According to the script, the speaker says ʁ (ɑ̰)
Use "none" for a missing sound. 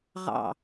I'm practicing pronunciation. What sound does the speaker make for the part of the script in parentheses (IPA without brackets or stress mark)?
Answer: ɑ̰